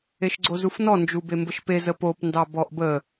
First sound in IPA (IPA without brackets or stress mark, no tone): e